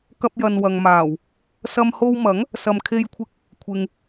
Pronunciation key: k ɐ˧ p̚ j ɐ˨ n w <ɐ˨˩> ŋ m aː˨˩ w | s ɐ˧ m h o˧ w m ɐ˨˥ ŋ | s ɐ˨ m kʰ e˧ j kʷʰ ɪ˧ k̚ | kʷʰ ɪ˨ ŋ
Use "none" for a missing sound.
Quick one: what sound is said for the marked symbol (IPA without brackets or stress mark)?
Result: ɐ˨